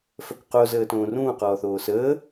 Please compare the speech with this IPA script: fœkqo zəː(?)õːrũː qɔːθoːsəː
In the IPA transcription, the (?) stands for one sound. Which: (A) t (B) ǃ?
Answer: A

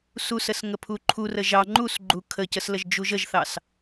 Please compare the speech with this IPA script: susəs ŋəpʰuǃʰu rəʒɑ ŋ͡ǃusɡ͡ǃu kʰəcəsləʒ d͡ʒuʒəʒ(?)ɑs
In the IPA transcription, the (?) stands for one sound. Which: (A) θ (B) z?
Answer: A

